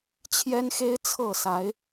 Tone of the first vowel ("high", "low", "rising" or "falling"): high